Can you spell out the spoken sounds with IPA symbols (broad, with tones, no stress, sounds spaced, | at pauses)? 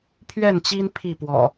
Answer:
pʰ ɥ ɛ˥˨ n t͡ɕ i˦ n pʰ i˥˨ p w ɔ̰˨˩